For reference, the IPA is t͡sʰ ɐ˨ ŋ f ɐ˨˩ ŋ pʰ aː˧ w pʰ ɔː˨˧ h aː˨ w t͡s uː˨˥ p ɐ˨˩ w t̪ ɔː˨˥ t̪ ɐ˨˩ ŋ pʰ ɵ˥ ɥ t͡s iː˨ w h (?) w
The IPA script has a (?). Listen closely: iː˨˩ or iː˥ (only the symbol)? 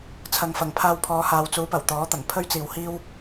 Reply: iː˥